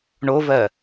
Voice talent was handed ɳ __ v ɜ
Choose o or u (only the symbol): o